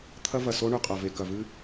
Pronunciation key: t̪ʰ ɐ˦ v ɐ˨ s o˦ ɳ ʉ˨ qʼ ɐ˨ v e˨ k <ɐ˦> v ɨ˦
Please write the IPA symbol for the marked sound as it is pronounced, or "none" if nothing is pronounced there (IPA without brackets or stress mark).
ɐ˨